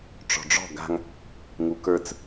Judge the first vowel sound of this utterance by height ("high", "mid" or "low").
mid